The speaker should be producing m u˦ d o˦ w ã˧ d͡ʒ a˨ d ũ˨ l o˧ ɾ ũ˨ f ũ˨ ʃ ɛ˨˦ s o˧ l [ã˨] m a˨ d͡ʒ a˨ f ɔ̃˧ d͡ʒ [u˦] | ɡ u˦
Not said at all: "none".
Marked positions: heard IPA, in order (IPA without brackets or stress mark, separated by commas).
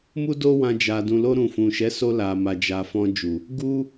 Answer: a˨, u˨